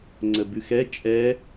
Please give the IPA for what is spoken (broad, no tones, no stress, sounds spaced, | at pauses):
ŋ͡ǀ ə b ʉ x ɛ t͡ʃʼ ɛ